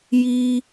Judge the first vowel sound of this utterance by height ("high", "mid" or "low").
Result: high